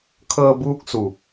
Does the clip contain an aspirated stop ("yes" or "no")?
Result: yes